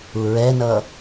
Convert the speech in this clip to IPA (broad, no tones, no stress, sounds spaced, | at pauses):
u ɹ ɛ n ʌ